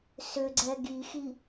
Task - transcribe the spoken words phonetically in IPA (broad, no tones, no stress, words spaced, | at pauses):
sʏɡ͡ǀɛ ɡixi